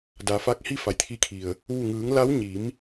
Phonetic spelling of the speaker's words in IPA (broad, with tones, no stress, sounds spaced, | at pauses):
d a˩˧ f aː˧ k̚ h i˥˨ f a˩ j t̪ʰ i˧ kʰ i˩ ə̯ | ʋ u˧˩ ŋ ɯː˩˧ ŋ l a˧˥ w ɲ i˩˧ m